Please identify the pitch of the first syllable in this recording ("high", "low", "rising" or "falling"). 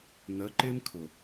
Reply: rising